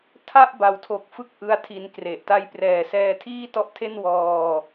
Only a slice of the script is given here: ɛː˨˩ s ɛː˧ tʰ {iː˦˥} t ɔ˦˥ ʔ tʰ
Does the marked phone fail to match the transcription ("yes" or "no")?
yes